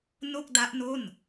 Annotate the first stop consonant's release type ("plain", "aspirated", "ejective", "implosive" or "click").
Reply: plain